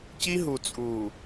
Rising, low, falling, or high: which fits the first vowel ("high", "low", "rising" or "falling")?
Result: high